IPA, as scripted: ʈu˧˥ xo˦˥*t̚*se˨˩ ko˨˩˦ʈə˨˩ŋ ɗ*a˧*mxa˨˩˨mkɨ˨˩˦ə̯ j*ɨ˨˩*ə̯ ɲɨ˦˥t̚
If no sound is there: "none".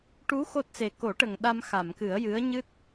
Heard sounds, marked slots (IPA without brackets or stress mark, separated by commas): t̚, a˧, ɨ˧˥